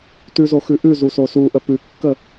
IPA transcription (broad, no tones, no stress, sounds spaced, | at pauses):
t ʉ z o x ʉ ʔ ʉ z u s o s u ʔ ə p ʉ kː ə